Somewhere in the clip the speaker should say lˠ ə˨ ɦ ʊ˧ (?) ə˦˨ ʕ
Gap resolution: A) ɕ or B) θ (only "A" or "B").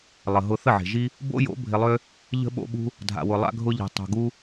B